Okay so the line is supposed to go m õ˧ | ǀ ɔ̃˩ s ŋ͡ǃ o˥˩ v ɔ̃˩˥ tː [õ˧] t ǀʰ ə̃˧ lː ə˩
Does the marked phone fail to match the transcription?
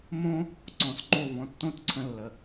yes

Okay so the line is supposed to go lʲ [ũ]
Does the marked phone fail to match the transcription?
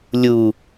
yes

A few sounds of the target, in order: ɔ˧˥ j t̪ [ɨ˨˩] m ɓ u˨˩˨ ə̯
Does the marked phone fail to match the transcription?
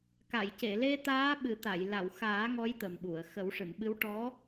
yes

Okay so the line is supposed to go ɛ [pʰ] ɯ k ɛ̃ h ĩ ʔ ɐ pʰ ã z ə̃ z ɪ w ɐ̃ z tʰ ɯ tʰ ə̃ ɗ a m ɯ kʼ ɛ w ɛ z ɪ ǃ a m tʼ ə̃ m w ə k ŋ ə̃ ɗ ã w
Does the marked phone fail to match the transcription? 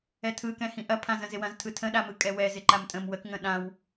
yes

